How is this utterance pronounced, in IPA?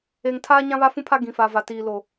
e˨ ŋ tʰ aː˦ ɲ ã˦ β a˦ f ũ˦ pʰ a˦ ɡ ĩ˨ f a˨ v a˨ t iː˨ l o˨

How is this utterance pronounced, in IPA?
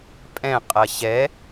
pʼ ɛ̃ qʼ ɐ ɕ ɛ

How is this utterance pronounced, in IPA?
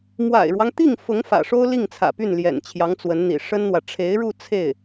m w a̰˨˩ ɪ̯ ɻ w ɑ˦ ŋ t̪ i˥˩ ŋ f ʊ˧˥ ŋ f ä̰˨˩ ʂ o˥ ʊ̯ l i˥˩ ŋ t͡sʰ ä̰˨˩ p y˥˩ n l j ɛ̰˨˩ n t͡ɕʰ j ɑ˧˥ ŋ t͡s w ə˧˥ n n̪ ḭ˨˩ ʂ ə˥ n n̪ w ä˨ ʈ͡ʂʰ e˧˥ ɪ̯ ɻ u˥˧ t͡sʰ e˥˩ ɪ̯

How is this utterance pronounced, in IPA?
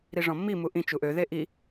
ɾ i ʐ ɔ̃ mː i m u ʔ ĩ t͡ʃ u ʔ ø ð e ʔ i

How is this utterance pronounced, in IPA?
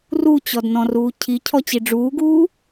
r u t͡ɕ ɔ d n ɔ̃ r uː cʰ i cʰ ɔ t͡ɕ i ɖ͡ʐ uː ɡ uː

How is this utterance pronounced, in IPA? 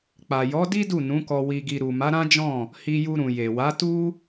k͡p a˨ j ɔ˨˦ d i˦ d u˦˨ n ũ˨˦ k ɔ˧ w i˧ ɡ i˧ ɾ u˨ m a˨˦ ɾ ã˦ d͡ʒ ɔ̃˦˨ | h i˧ j u˧ ɾ ũ˨ j e˨ w a˨˦ t u˦

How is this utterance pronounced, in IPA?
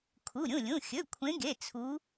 kʰ u˩˧˩ ɾʲ ũ˩˧˩ lʲ ũ˩˧˩ xʲ ɵ˩˧˩ kʷʰ ẽ˨˦ ɡ e˩˧˩ t͡sʰ u˨˦

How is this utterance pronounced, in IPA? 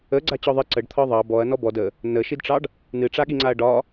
ə ɡ͡ǀ a t͡ɕ ɔ ðˤ ɨ ǀ ə ɖ t̪ʰ ɒ ðˤ ɑ b ɔ ɐ̯ n ɔ b ɔ d ə | n ə ʃ i d ʈ͡ʂ ɑ ɖ | n ɨ ʈ͡ʂ a ɠ i ŋ͡ǀ a ɐ̯ ɖ ɒ

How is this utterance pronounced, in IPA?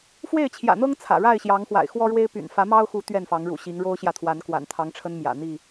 f w e˥˨ ɪ̯ t͡ɕʰ j ä̰˨˩ n̪ ɤ˦ ŋ t͡sʰ ä̰˨˩ ɻ a˥˨ ɪ̯ ɕ j ɑ˨˦ ŋ x w a̰˨˩ ɪ̯ x w ɔ˦ ɻ w e˦ ɪ̯ p y̰˨˩ n f ä˨˦ m ɑ˦ ʊ̯ x u˨˦ t̪ ɥ ɛ˥˨ n f ɑ˨˦ ŋ ɻ ṵ˨˩ ɕ i˨˦ ŋ ɻ o˦ ʊ̯ ɕ j ä˨ t̪ʰ w a˨˦ n k w a̰˨˩ n t̪ʰ ɑ˨˦ ŋ ʈ͡ʂʰ ə˦ n m j ä̰˨˩ n̪ i˥˨

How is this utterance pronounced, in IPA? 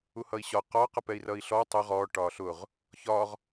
u h ʌ i̯ ɕ ɒ q ɒ q ʌ p ɛ i̯ r ʌ i̯ ɬ ɔ tˤ ʌ ʁ ɔː ʈ ɒː ɬ ʊ ʁ | ç ɒ ʁ

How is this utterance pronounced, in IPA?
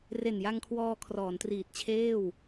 r e˨˩ n j a˧ ŋ kʰ w ɔː˧ kʰ r ɔː˩˦ n t r iː˨˩ t̚ t͡ɕʰ eː˥˩ w

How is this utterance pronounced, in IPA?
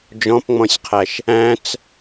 d͡ʒ ɔ̃ p ŋ͡m ɔ̃ sʲ qʰ æ ʃ | æ̃ t͡s

